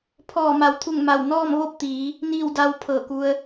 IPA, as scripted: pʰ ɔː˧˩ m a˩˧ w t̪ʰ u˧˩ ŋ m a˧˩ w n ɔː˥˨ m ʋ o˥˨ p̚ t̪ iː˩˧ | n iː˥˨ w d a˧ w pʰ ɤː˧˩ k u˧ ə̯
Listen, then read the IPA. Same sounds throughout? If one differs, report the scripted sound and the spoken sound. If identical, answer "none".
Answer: none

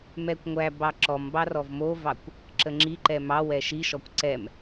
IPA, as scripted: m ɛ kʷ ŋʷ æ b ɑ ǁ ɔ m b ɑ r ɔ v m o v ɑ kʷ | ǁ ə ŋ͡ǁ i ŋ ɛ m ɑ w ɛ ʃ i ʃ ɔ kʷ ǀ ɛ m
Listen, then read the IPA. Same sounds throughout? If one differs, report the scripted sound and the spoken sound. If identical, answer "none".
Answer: ŋ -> ǃ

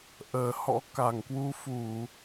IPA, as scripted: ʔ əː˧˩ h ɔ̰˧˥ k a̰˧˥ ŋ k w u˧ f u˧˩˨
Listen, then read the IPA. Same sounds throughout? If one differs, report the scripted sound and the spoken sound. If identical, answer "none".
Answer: a̰˧˥ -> a˧˩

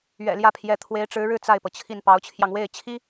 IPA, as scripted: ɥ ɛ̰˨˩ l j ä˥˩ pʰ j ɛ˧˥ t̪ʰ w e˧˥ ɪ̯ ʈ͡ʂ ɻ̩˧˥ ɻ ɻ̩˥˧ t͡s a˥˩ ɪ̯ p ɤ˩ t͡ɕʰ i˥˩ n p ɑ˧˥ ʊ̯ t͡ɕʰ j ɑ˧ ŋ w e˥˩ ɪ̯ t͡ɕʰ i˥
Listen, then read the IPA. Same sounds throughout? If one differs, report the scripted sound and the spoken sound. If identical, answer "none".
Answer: none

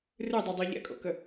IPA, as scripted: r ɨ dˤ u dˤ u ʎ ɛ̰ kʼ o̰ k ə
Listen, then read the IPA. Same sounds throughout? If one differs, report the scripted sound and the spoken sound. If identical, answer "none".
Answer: none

